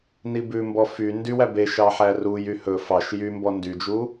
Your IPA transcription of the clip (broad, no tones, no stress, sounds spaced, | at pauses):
n i b ʉ m b ɔ f y n d y w æ b e ʃ ɑ ħ æ r u j y h ɵ f ɑ ʃ j y m b ɔ n d y d͡ʒ u